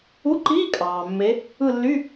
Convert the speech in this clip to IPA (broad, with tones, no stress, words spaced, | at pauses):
u˧˥˧ǃiː˧˥˧ kʼɑː˩mːe˨˦ | ɯ˦˨lːy˧˥˧